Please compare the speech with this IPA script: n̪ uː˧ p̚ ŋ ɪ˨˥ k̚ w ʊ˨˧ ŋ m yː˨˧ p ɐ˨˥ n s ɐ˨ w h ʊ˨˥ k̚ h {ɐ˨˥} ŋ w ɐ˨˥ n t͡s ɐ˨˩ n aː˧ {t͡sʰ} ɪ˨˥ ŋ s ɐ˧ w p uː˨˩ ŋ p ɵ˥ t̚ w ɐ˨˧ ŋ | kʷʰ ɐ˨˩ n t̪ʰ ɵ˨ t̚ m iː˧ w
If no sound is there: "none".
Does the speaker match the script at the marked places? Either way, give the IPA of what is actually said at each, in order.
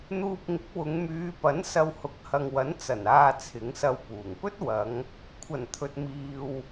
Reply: ɐ˨, t͡sʰ

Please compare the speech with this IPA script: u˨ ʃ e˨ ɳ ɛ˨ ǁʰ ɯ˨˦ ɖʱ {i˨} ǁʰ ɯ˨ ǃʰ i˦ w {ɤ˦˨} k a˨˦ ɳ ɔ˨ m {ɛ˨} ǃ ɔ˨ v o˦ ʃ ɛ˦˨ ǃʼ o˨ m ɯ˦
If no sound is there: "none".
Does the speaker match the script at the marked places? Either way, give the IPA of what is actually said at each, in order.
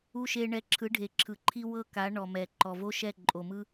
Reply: e˨, ɤ˦˨, ɛ˨

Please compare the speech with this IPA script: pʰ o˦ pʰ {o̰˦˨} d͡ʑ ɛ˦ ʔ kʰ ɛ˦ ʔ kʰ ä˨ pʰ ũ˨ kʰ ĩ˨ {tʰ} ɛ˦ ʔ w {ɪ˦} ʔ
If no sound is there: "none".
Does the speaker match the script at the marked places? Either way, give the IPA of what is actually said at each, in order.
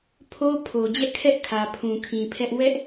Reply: o˨, pʰ, ɛ˦

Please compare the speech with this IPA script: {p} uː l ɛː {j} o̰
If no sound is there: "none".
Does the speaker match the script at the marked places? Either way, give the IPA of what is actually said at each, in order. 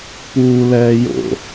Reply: p, j

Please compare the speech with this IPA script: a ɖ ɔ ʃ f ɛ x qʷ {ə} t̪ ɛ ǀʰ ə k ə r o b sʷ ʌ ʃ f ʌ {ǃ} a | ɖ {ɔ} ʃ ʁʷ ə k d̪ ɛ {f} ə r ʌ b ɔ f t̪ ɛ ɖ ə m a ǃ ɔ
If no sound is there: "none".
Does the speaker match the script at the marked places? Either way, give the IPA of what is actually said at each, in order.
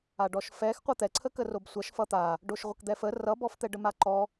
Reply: ʌ, t̪, o, f

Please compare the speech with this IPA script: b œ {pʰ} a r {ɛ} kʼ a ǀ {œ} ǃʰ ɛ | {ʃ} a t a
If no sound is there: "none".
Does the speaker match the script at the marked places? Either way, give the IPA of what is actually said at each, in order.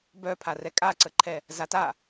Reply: pʰ, ɛ, ə, z

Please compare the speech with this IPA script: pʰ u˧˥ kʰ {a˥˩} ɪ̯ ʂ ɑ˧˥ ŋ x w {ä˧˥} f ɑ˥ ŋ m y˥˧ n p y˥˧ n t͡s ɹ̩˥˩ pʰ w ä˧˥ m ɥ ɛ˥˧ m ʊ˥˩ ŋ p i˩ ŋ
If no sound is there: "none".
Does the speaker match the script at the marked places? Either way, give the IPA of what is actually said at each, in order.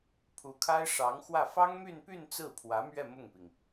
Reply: a˥, ä˥˩

